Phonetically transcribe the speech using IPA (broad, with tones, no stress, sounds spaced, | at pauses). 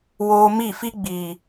w oː˧ m i˦˨ f i˦ ɡ͡b iː˨